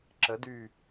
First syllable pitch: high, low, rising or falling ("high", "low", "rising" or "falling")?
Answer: rising